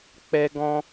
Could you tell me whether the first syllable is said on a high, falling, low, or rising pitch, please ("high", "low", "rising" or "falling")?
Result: high